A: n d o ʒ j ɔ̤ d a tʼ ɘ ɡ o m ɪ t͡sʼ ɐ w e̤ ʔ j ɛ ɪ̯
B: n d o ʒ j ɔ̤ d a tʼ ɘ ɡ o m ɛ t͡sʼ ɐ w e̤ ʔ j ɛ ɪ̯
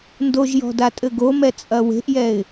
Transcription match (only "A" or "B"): B